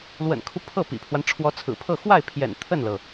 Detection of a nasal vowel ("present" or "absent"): absent